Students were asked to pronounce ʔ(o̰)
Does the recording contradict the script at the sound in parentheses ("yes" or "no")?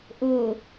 yes